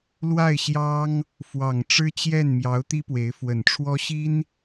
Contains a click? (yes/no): no